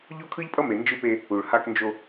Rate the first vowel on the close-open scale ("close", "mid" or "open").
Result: mid